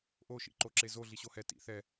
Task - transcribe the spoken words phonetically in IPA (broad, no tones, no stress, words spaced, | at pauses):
ʔo ʃḭǃoǁezo ɮiɕohɛ tḭ θɛ